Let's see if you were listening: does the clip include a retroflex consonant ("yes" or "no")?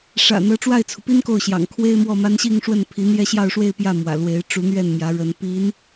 yes